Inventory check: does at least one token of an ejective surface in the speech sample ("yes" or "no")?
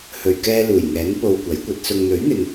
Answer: no